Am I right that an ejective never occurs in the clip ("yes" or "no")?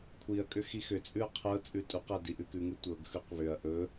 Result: no